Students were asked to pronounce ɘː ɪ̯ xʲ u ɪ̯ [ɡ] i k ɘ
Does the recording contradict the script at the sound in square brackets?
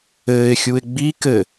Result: yes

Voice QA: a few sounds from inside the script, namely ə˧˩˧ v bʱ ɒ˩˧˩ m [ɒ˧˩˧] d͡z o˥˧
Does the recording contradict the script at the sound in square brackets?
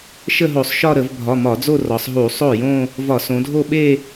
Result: no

